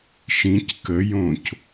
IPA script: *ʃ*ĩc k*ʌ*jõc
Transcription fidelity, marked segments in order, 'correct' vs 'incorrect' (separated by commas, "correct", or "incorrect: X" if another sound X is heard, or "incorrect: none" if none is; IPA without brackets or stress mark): correct, incorrect: ə